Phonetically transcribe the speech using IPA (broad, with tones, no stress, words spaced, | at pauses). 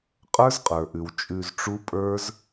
qʼə˞˦zqʼə˞˨ʔʉ˨w t͡ʃʼʉ˧zʈ͡ʂu˦pʼə˞˦z